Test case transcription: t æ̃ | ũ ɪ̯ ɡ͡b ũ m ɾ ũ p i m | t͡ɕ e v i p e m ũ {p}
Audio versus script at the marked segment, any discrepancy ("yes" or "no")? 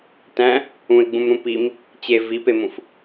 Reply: yes